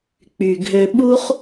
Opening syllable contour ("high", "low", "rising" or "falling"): low